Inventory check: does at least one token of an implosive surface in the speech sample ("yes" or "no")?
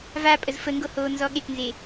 yes